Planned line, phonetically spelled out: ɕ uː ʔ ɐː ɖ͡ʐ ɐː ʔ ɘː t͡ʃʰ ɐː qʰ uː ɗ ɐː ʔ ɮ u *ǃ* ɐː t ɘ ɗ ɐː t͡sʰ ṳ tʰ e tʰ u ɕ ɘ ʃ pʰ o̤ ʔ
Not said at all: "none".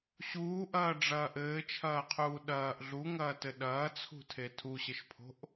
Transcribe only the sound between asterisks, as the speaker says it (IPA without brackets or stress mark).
ŋ